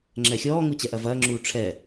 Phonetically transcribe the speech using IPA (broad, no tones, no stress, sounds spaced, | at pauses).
ŋ͡ǁ ɛ xʲ ɔː ŋ u t͡ɕ ɛ ʔ ɐ v ɐː ŋ͡ǁ uː ʈ͡ʂʰ ɛ